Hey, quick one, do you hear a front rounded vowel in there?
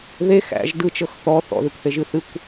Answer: no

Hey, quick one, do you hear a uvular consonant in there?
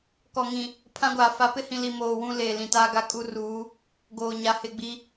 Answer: no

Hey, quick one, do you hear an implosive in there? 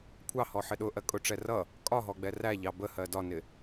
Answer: yes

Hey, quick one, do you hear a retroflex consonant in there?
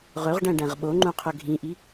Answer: yes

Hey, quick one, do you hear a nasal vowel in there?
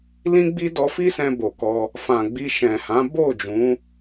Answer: yes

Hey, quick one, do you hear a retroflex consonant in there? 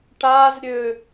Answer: yes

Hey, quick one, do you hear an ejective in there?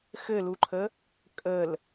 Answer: yes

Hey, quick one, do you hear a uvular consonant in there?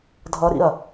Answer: no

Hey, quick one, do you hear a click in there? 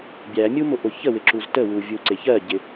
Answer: yes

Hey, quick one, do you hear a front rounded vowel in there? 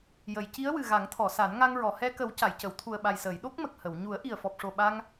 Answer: no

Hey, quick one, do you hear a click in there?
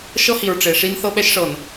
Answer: no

